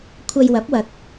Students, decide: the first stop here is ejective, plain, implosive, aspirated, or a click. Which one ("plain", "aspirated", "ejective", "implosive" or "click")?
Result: aspirated